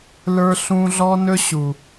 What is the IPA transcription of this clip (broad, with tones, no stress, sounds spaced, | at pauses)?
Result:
l ə˞˧ ɬ ũ˧ ɮ ɔ˦ n ɵ˦ ɕ u˨